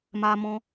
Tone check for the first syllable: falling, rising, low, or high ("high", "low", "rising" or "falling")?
high